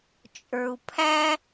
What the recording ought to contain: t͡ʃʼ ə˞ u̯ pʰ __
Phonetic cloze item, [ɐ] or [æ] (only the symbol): æ